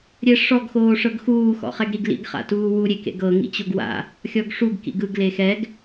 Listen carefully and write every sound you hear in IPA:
ɾʲ ɛ ʂ ɔ ɡ x oː ʂ ɤ ɡ x uː x ɔ̰ χ ɛ ɡ ɾ i ɡ l ḭ ɡ χ a̰ t uː w u ɾʲ e k ḛ ɡ ɤ ŋ ḭ t͡ɕ o ɡ w a̰ | xʲ ɔ ɡ ʂ u ɡ k ḭ ɡ ɯ ɡ l e x ɛ ɡ

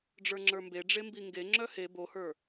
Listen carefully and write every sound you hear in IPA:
ɖ͡ʐ ə˞ ŋ͡ǁ ə˞ m b e ɖ͡ʐ e m b i ŋ ɡ e ŋ͡ǁ œ h e b o h ə˞

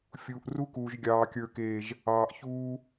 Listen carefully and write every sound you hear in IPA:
fʲ uː˨ ʔ r u˦ k uː˨ ʒ ɡʲ ɑː˨ kʲ ə˞˨ k eː˨ ʒ | ɑː˨ ʔ ç uː˦

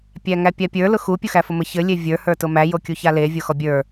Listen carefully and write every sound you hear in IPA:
pʲ æ ŋ æ pʲ a pʲ ə˞ l ʊ x u pʲ u x æ f ʊ m ɘ ç ɘ lʲ e vʲ ə˞ h ə˞ t ʊ m æ j o kʲ u ç a l e vʲ o x ɔ bʲ ə˞

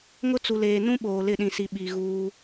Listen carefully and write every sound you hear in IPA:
ŋ ʊ˦ t͡s u˨ l eː˨ n ũ˦ ɓ oː˨ l ɪ˦˨ ɗ ĩ˨ s i˨ ɓ i˨ ɣ uː˦

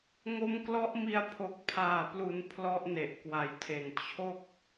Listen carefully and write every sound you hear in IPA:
ŋ o˦˥ m k l ɔ˦˥ ʔ m i˧ a̯ pʰ o˨˩ k̚ pʰ aː˨˩ p l u˩˦ n pʰ l ɔ˦˥ ʔ n e˨˩ ʔ k w a˨˩ j tʰ e˨˩ n t͡ɕʰ o˥˩ k̚

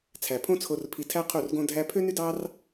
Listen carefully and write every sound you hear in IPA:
t͡sʰ æ˨ pʰ õ˦ t͡sʰ o˧ r pʰ i˧ tʰ æ˦ qʰ u˦˨ r ɡ õ˦ dʱ æ˦ pʰ ø˦ n y˦ d ɑ˦ r

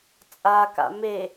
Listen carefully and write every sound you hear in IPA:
t͡sʼ a k a̰ m e

